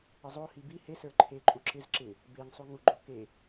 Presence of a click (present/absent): present